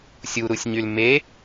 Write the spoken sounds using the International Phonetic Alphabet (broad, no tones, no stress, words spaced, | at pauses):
sʲuɾusʲɲyl me